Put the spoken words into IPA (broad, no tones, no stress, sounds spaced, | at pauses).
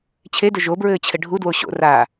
t͡ɕʰ e d ɘ ʒ o b ɹ ɘː t͡ɕʰ ɘ ɖʱ u d w o ɕ o̰ r a